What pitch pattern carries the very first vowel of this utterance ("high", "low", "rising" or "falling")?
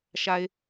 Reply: low